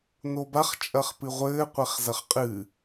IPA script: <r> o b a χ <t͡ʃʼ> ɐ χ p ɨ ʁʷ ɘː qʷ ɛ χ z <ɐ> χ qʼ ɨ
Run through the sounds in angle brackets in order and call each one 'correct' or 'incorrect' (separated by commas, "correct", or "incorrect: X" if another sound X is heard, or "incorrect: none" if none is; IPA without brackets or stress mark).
incorrect: n, correct, correct